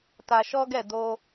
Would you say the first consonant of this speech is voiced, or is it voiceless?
voiceless